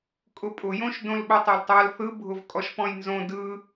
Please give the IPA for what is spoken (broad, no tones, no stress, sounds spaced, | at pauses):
kʼ ʊ pʼ ʊ j õ ʃ d õ l ɓ o tˤ a l tˤ a l θ ɯ bʱ ʊ v kʼ ɔ ʃ p ɔ̃ j n z õ d ɯ